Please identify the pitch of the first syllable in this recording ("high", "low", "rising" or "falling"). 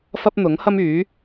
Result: high